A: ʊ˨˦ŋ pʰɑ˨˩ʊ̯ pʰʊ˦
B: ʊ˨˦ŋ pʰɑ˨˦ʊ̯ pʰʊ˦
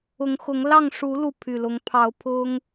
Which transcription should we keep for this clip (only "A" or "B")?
B